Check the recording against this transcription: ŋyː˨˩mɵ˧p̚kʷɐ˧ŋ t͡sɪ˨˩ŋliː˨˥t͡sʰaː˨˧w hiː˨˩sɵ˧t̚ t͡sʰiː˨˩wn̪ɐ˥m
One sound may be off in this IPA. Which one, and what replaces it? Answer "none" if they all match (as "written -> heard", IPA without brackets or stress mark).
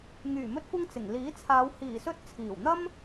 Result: p̚ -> t̚